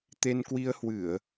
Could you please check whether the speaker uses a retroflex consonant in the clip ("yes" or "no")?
no